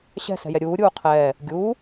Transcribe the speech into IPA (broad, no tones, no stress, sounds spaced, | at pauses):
ɕ ɛ̤ s ɛ̤ j ɛ ɾʲ uː ɾʲ uː qʰ ɛː | ɡʲ uː